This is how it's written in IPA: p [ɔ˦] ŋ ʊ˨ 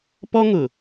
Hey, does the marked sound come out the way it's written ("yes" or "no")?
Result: yes